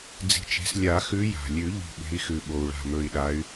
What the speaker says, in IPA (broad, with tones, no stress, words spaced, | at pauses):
d͡zi̤˨˦t͡ʃe̤˨˦s lʲa˨˩˦xʉ˨˦ja̤˩lʲʉ˨˩˦ ʎi̤˧˩ɠe̤˨˦i̯xʉ˩ ɓo˩u̯ɭa̤˧˩mɵ˧˩i̯ɗa˨˦y̯